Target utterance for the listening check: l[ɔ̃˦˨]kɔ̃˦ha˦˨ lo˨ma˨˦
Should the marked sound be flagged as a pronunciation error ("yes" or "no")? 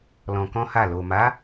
yes